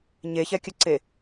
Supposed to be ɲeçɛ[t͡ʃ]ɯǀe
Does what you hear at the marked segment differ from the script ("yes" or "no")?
yes